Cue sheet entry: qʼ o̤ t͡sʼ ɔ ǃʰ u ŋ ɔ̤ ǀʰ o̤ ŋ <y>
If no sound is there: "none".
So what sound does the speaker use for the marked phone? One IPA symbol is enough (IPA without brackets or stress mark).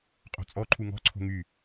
y